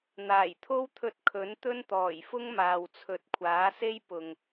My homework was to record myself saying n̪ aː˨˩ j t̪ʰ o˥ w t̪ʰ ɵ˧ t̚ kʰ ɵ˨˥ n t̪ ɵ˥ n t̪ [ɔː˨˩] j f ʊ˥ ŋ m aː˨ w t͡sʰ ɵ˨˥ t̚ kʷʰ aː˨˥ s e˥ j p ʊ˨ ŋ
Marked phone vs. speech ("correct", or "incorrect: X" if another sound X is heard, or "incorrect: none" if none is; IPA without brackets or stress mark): correct